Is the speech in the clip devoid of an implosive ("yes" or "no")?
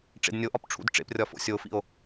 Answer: yes